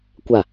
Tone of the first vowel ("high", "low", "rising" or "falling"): falling